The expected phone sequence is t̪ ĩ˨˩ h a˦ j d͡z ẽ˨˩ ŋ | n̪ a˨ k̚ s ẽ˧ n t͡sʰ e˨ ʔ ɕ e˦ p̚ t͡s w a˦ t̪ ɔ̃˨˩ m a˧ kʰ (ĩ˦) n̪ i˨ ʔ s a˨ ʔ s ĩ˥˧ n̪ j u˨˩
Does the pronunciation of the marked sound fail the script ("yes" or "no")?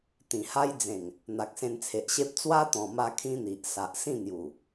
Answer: no